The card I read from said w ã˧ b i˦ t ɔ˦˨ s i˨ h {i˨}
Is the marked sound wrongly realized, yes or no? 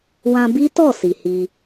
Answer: yes